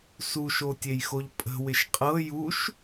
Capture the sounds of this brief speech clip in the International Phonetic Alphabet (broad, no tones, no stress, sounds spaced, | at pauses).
s u ʃ o tʲ e j x o ʎ pʼ ə̤ w ɪ ʃ qʼ ɤ j u ʃ